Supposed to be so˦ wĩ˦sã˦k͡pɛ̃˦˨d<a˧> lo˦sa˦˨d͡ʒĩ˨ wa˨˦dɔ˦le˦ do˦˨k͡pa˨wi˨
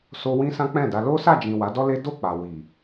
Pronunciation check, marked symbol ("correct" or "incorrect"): correct